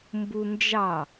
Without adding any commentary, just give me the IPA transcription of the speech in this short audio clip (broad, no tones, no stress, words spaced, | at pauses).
mbund͡ʒɑ